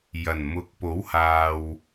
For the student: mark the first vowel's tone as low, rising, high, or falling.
low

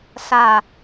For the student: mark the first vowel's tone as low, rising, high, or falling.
low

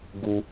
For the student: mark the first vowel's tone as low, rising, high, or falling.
high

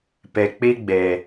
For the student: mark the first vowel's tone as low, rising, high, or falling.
low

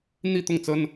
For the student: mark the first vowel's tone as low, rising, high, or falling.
falling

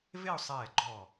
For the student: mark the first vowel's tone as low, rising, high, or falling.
falling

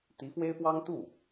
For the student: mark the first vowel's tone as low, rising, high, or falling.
rising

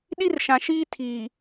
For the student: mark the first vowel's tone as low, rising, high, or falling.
high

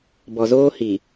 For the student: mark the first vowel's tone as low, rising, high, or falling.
low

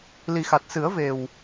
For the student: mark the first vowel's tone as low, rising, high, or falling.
low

